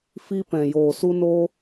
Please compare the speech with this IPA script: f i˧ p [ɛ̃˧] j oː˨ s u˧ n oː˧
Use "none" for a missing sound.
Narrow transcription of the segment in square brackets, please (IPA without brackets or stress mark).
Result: ɛ̃˨